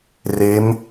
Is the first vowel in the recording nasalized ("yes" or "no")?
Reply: no